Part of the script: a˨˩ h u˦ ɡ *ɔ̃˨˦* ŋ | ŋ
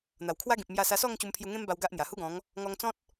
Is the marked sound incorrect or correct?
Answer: correct